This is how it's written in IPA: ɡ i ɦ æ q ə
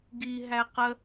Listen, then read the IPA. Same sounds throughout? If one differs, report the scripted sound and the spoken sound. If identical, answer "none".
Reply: none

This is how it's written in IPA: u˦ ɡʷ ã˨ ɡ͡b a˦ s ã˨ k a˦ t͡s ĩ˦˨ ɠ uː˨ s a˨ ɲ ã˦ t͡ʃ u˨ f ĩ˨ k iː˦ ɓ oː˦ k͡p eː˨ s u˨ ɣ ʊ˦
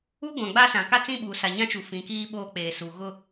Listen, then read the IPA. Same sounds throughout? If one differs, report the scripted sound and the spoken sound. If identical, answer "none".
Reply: ɠ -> ɓ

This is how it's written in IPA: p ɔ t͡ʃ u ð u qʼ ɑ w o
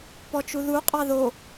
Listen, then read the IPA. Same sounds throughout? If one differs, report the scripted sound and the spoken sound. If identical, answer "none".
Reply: w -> ð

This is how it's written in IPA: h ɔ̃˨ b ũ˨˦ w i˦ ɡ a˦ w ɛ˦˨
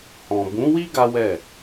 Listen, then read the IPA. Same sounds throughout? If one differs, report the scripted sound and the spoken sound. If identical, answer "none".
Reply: none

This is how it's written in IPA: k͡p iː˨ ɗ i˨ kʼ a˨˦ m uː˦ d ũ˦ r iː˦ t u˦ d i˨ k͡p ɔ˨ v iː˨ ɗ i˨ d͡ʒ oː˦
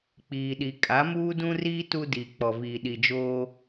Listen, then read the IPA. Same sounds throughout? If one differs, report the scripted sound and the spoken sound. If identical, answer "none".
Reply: none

